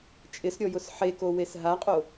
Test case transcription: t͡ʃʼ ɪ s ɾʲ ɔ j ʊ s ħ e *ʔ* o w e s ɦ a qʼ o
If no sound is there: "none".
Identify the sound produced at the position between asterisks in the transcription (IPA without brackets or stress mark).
k